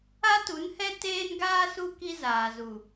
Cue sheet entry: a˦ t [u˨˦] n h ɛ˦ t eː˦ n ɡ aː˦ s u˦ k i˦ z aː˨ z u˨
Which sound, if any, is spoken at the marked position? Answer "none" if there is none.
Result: u˨˦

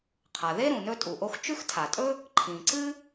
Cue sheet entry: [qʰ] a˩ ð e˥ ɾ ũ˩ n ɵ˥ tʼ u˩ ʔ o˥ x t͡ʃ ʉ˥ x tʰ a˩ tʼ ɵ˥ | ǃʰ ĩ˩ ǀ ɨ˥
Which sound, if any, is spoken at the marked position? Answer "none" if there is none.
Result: qʰ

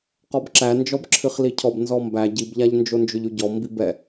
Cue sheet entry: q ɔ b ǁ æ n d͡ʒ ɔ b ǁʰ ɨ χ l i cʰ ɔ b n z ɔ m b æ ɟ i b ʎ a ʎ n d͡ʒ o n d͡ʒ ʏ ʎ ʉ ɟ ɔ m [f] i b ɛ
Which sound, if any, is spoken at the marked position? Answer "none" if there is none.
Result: b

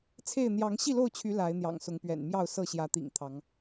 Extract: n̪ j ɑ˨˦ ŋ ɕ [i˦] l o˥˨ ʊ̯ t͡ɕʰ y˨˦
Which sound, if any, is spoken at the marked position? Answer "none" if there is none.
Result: i˥˨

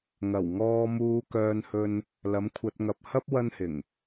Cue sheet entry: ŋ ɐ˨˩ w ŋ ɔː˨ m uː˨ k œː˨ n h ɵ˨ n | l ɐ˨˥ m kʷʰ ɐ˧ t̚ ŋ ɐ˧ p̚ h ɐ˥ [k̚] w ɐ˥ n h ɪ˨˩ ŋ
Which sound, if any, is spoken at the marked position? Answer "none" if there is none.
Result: p̚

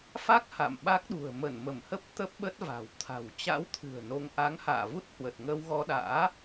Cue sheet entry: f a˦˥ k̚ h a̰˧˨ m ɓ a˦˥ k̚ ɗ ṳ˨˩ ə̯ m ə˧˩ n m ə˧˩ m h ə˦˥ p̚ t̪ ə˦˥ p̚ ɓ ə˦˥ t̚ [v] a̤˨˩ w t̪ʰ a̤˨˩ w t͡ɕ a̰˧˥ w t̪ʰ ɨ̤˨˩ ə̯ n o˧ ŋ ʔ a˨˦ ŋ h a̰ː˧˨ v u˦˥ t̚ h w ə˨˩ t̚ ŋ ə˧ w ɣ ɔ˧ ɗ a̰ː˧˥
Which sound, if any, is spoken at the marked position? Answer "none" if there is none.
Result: v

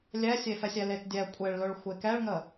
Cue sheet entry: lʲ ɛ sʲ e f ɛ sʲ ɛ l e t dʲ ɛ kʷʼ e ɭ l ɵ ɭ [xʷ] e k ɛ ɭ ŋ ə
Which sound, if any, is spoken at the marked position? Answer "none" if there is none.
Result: xʷ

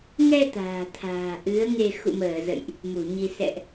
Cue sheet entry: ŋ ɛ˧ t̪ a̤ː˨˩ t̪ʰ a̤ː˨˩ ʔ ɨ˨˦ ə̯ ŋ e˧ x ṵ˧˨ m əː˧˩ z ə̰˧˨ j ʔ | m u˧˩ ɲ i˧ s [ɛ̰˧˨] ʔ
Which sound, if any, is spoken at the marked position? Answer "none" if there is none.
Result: ɛ̰˧˨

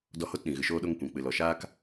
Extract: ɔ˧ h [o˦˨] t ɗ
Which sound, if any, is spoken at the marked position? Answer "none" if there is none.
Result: o˦˨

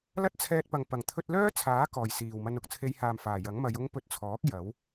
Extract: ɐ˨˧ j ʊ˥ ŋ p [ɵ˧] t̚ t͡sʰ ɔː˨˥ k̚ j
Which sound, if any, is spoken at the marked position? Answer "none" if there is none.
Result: ɵ˧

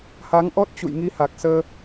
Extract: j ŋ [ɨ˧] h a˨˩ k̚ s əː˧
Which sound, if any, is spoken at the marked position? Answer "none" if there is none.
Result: i˧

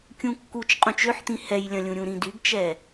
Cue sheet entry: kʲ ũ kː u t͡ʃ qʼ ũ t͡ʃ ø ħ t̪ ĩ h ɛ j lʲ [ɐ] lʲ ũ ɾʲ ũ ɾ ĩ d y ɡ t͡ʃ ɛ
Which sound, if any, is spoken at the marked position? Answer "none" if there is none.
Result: ɐ̃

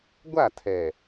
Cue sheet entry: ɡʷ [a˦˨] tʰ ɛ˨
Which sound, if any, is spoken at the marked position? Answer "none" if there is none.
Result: a˦˨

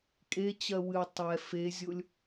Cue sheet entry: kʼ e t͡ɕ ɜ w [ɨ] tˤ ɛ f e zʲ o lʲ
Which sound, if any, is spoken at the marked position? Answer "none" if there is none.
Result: ɨ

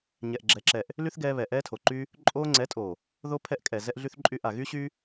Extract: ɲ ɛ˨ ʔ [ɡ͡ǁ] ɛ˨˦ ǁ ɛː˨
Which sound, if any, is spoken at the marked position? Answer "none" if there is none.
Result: ɡ͡ǁ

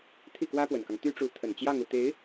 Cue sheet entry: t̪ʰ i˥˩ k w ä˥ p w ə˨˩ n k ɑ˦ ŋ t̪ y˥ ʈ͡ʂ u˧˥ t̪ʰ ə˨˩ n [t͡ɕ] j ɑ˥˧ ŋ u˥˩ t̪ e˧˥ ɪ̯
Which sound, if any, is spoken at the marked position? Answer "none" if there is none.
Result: t͡ɕ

